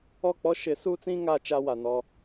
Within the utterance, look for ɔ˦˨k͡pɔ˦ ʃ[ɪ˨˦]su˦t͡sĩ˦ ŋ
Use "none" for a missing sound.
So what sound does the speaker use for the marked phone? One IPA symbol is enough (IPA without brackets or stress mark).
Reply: ɪ˨˦